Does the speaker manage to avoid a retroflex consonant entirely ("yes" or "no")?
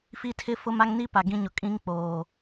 yes